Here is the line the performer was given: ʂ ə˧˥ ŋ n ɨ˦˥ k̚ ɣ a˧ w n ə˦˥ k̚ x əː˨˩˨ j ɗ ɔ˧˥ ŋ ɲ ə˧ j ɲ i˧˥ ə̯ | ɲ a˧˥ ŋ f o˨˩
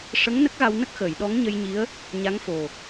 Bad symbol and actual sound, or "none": ɨ˦˥ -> ə˦˥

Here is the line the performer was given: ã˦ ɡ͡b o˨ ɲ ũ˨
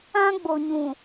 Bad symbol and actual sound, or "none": none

